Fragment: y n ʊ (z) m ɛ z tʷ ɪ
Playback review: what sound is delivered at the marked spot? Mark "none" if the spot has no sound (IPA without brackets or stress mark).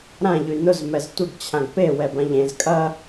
z